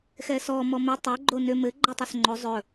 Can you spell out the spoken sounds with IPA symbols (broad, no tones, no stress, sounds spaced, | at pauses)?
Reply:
x ɛ s ɔ m ɔ m ɘ tˤ o ɡ͡ǃ o n ʏ m ɘ ɡ͡ǃ ɔ tˤ ɵ s ŋ͡ǃ o zˤ ɵ